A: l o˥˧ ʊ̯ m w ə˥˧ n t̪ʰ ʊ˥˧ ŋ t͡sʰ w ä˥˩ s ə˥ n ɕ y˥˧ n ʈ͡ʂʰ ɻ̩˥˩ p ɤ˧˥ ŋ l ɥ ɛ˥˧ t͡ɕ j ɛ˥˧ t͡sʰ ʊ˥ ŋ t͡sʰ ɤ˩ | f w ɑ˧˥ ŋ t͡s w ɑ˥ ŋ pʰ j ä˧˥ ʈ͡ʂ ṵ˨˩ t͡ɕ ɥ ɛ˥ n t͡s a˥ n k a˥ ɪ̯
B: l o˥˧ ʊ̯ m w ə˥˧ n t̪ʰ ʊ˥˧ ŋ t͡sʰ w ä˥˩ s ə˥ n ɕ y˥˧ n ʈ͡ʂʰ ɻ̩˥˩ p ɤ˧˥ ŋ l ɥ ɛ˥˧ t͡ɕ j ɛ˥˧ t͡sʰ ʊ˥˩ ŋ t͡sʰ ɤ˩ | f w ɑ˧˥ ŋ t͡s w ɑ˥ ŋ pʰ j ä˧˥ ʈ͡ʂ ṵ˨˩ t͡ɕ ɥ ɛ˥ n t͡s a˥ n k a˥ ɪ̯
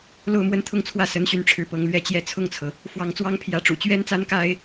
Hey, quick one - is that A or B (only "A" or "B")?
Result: B